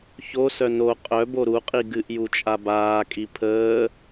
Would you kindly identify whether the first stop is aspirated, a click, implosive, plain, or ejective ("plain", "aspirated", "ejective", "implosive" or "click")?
ejective